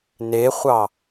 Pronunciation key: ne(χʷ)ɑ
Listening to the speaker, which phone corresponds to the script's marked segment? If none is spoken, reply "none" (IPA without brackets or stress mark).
χʷ